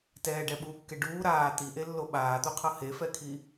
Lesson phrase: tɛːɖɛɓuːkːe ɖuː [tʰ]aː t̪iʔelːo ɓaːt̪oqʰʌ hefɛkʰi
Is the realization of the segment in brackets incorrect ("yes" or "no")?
yes